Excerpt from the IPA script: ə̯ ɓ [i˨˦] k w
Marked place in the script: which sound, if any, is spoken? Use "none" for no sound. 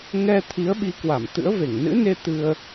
i˨˦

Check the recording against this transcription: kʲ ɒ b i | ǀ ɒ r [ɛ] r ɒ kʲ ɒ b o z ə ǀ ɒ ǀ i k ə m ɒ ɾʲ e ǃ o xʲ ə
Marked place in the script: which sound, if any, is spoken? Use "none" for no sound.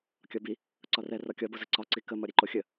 ɛ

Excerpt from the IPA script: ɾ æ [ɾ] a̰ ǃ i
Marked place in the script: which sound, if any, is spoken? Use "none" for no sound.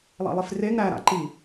ɾ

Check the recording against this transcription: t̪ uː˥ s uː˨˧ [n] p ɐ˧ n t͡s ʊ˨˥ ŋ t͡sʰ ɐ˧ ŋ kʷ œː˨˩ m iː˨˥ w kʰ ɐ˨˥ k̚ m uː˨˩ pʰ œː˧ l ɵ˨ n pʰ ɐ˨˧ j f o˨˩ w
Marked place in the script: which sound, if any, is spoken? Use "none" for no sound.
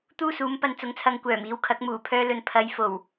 m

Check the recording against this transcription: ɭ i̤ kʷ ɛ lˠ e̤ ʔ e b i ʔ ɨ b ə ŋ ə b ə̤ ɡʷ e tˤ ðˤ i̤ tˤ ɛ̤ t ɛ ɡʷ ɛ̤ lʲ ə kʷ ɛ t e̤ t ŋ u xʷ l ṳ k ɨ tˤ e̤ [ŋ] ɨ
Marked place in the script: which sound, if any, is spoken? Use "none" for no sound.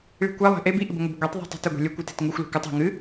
ŋ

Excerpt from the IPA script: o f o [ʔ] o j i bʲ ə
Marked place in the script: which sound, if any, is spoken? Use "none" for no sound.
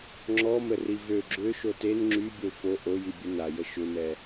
ʔ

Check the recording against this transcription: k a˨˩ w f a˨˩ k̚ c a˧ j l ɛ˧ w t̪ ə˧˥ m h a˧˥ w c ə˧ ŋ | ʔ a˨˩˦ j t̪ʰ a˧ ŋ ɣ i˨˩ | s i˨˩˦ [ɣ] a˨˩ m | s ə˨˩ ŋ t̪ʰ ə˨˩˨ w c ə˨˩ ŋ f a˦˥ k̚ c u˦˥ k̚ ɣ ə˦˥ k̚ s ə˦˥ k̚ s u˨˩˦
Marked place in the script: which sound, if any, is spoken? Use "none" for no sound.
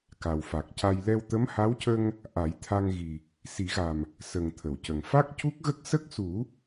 ɣ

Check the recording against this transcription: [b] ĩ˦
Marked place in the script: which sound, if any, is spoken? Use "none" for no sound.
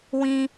w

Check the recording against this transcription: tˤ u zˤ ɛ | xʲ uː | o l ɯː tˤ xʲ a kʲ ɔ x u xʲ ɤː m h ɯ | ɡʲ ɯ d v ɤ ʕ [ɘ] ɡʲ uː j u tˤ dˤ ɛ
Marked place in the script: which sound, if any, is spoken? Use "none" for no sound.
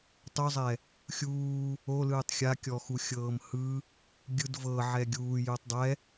ɛ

